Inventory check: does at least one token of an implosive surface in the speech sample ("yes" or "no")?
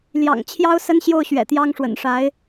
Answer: no